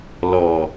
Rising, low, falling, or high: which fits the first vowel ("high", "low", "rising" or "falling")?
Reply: low